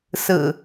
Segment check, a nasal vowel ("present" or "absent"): absent